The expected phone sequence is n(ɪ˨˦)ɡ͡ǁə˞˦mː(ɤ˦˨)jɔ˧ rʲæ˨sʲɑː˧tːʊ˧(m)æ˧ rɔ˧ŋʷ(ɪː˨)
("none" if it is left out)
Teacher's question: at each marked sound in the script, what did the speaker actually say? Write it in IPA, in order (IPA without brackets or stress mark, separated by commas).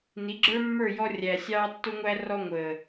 i˨˦, ə˞˦˨, ŋʷ, əː˨